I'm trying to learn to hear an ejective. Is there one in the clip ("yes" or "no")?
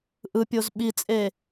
yes